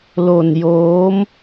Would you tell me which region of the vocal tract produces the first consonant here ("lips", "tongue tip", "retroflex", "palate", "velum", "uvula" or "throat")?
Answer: tongue tip